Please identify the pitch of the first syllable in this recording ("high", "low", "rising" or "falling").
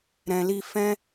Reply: low